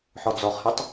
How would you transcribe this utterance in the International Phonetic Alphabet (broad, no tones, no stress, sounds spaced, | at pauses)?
ħ ɔ d͡z ɔ χ h i tˤ